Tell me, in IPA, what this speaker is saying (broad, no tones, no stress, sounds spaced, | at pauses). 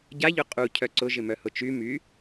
ɟ a ʎ ʊ qʼ u cʰ œ ǀ ʊ ʒ ɪ m œ h ʊ t͡ʃ y m y